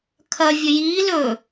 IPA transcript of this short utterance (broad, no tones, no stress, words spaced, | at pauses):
kʰɐ vʲɵjiː lɵ